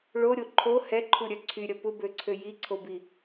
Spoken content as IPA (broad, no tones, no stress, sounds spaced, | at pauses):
ɭ o ɾʲ o ǃʰ o h ɛ ǃʰ u ɾʲ œ ǀʰ y ɾʲ ɐ p ʊ b ø ǀʰ ø j i ǀʰ o b i